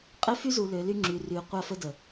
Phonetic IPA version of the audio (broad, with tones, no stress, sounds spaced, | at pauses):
qʼ e˦ f y˦ z u˨ l ø˨˦ l y˦ ŋ͡ǁ y˨ r yː˨ qʷ a˦˨ f ə˦ d ə˨